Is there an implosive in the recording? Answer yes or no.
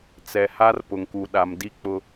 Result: yes